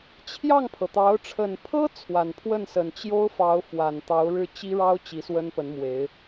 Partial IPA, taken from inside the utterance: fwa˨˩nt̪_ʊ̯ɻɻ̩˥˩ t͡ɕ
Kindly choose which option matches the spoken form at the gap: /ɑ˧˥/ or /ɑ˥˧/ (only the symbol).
ɑ˧˥